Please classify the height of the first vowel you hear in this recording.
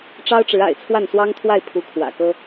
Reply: low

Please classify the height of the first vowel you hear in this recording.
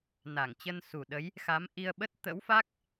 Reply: low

